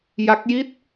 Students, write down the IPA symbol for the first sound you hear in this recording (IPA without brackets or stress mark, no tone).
j